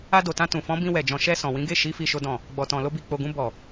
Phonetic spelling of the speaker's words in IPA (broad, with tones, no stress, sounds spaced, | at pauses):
a˧ d o˨ t ã˧ t ũ˨ f ɔ̃˨˦ b ĩ˧ w ɛ˨ d͡ʒ ɔ̃˨ ʃ ɛ˧ s ɔ̃˨ w ĩ˨˦ ɡ e˦˨ ʃ i˨˦ f i˦ ʃ o˦ d ɔ̃˦˨ | ɡ͡b ɔ˨ t ɔ̃˨ l o˧ b i˨ k͡p o˨ ɡ ũ˧ b ɔ˨